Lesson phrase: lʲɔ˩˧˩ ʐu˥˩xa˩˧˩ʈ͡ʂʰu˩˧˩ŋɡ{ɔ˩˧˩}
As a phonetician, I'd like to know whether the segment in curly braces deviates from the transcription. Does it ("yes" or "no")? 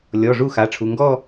yes